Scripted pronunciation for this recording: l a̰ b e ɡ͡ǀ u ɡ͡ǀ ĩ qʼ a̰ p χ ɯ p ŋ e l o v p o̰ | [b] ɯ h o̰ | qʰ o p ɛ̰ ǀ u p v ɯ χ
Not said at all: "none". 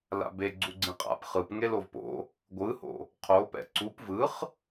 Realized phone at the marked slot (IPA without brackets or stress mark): ɡʷ